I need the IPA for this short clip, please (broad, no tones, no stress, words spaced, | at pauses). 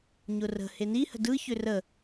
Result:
ɲʊrə̤ heni hə̤dɯ çʏrə